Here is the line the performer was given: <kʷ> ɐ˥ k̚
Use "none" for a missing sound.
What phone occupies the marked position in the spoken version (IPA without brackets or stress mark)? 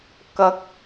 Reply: k